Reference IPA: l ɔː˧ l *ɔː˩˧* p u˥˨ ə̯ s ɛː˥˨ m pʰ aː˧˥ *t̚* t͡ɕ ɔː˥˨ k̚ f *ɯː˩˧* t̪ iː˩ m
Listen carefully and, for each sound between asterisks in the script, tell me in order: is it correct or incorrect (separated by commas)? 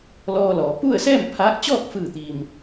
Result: correct, incorrect, incorrect